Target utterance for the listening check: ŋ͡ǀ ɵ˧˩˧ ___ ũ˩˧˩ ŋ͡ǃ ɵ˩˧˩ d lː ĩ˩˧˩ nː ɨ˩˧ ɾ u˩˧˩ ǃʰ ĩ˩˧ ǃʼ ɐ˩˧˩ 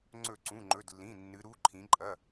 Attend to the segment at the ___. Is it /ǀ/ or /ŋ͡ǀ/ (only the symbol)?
ǀ